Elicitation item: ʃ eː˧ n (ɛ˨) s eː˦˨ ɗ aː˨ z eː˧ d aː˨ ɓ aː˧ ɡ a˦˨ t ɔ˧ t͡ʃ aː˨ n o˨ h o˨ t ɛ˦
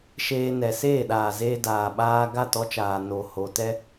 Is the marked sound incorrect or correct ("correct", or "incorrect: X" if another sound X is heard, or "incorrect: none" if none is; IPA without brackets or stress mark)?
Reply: correct